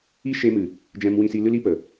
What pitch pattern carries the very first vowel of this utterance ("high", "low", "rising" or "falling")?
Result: high